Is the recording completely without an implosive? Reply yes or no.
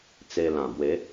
yes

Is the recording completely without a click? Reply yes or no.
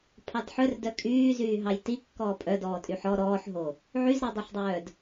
yes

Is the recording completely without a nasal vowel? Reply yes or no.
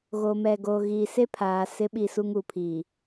yes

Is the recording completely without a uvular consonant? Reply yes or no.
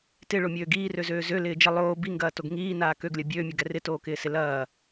yes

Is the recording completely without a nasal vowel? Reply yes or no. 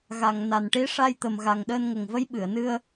yes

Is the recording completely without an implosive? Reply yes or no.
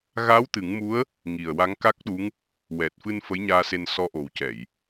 no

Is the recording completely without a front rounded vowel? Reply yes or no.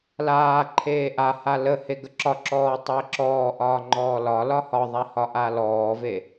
yes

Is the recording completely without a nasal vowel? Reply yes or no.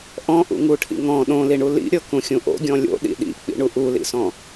no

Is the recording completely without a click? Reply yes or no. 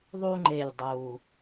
no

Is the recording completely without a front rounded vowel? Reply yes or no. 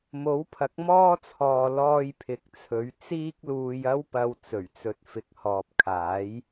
yes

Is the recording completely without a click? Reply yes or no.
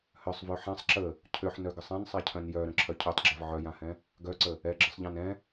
no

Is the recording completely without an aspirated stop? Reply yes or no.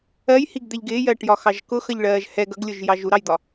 yes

